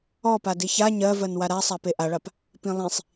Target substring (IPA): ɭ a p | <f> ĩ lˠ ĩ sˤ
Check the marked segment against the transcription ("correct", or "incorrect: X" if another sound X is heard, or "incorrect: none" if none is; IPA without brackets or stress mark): incorrect: p